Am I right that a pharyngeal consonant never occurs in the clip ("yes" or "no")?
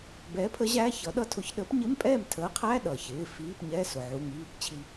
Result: no